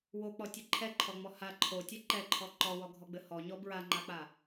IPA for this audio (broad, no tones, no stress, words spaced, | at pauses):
wok͡pɔtʲɘ ǃʰɛǃʰɔŋ͡mɔ ha ǃʰotʲɛ ǃɛǃʰɔ ǃɔwɔɡʱɔɡ͡bɘ hɔɲɔ bɹaŋ͡ǃak͡pa